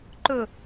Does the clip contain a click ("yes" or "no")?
yes